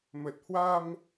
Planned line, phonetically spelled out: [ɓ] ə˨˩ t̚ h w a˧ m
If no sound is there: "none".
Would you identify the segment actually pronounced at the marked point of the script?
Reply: m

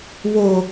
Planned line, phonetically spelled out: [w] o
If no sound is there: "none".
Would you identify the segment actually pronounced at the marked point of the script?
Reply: w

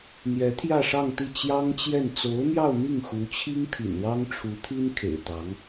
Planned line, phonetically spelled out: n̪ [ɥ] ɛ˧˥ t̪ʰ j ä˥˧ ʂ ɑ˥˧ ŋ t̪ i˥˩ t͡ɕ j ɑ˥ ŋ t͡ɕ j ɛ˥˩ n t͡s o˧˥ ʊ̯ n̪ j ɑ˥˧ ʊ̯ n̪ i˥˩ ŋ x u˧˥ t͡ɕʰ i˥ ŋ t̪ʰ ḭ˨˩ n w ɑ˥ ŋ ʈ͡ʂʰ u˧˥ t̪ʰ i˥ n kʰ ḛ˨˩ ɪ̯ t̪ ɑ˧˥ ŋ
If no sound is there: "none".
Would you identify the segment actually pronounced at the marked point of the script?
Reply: j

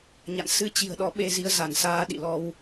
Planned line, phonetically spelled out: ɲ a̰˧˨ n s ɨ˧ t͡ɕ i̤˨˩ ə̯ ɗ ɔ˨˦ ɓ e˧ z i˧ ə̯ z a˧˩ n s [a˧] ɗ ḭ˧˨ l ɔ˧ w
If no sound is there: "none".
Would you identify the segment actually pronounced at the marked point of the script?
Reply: aː˧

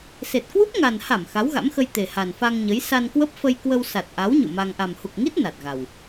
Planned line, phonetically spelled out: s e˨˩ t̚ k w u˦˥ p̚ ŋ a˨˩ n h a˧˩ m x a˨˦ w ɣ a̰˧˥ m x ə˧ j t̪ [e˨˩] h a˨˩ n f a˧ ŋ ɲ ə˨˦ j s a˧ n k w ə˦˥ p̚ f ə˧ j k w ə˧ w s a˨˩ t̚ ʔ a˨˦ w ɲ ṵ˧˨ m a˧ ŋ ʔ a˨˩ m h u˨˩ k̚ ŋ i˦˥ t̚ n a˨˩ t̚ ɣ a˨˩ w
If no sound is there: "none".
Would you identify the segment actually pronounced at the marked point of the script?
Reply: e˨˩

